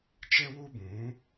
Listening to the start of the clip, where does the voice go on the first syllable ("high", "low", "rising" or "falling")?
high